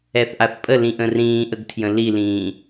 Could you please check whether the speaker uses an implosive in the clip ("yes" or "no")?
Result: no